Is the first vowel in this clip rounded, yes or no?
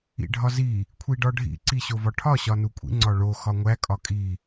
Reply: no